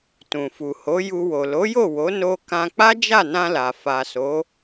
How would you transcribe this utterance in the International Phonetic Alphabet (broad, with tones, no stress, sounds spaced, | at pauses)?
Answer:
t ũ˨ f u˨ h o˨˦ j u˧ w o˨ l o˨˦ j o˦˨ w o˨˦ n o˧ k ã˧ k͡p a˦ d͡ʒ a˦˨ n ã˧ l a˨ f a˨ s o˨˦